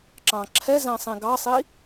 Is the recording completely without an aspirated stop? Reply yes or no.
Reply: no